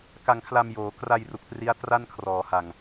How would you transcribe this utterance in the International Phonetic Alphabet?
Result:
k a˧ ŋ kʰ l a˧ m j oː˩˦ k r a˧ j r u˨˩ k̚ t r i˦˥ a̯ t r a˥˩ n kʰ r ɔː˩˦ h a˨˩ ŋ

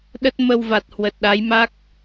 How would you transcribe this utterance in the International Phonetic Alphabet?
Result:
ɗ ə˦˥ t̚ m ə˧ w v a˨˩ t̚ h w ə˨˩ t̚ ɗ a˨˦ j m a˦˥ k̚

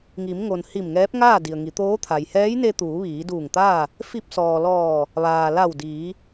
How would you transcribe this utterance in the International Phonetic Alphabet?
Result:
ŋ i˩˧ m ŋ o˩ n h i˧˩ m ŋ ɛː˧˥ p̚ ŋ aː˥˨ d i˩ ə̯ ŋ i˩˧ t̪ oː˧˥ t̪ʰ a˩ j h ɛː˧˥ j n e˧ t̪ uː˩˧ ʋ iː˩˧ d uː˧˩ ŋ t̪ aː˥˨ | f i˧ p̚ s ɔː˩ l ɔː˧˩ | ʋ aː˩ l a˧˩ w d iː˩˧

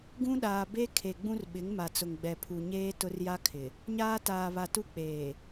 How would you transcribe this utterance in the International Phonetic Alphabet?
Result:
ɡ ũ˦ ɗ aː˨ b e˦ kʰ e˨ ɡ͡b ũ˦ r ɓ ɪ˨˦ ŋ m a˨ t͡s ʊ˨ ŋ ɡ͡b ɛ˨ pʰ u˨ ɲ eː˦ t ʊ˦ r j a˦ kʰ ɪ˨ | ɲ aː˦ t aː˨ β a˨ t u˦ k͡p eː˨

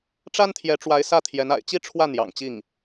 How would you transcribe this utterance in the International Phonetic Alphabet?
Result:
ʈ͡ʂ a˥ n t̪ʰ j ɛ˧˥ ʈ͡ʂ w a˧˥ ɪ̯ s ä˥˩ t̪ʰ j ɛ˧˥ n a̰˨˩ ɪ̯ t͡ɕ i˥ ʈ͡ʂʰ w ä˥˩ n̪ j ɑ̰˨˩ ŋ t͡ɕ i˥˩ ŋ

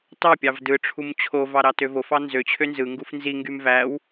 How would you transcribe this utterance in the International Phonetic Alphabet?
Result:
t ɑ pʲ ɑ v d ɯ ʈ͡ʂʰ u m t͡ɕʰ o v ɑ ɾ ɑ t ø v o f ɑ n z ø t͡ɕʰ ø n z ɯ ŋ ɡ u f n z i ŋ ɡ y m v æ w

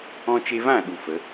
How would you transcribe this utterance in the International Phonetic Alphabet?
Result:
ɔ̃˧ t͡ʃ e˧ v ã˦˨ ɗ u˧ f ə˨˦

